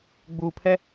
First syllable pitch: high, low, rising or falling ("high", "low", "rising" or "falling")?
low